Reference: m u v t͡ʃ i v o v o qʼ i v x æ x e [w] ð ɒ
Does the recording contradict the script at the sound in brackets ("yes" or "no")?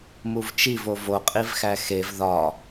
yes